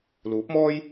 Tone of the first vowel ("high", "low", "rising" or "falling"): rising